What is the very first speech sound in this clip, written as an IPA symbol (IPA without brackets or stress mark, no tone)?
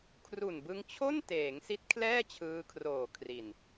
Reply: kʰ